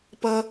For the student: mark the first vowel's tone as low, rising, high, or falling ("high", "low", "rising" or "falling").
high